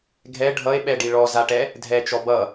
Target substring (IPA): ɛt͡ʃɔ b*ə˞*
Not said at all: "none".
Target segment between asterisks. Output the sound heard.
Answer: ʌ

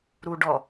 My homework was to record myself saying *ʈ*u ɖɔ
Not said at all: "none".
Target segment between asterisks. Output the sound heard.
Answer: ɾ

